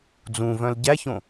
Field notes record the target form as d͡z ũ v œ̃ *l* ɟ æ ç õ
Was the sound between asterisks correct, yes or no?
yes